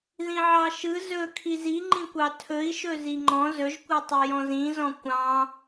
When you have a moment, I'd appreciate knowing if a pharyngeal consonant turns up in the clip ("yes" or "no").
yes